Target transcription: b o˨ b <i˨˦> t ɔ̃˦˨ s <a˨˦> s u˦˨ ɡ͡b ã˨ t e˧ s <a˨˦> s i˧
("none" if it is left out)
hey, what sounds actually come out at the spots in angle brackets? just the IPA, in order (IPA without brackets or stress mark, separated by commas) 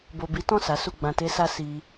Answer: i˨˦, a˨˦, a˧